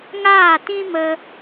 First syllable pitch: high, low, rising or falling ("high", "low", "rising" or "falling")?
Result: falling